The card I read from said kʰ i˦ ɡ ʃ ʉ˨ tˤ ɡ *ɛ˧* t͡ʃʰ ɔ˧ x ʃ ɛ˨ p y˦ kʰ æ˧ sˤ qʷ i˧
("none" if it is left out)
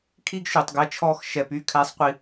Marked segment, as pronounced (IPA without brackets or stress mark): ɛ˧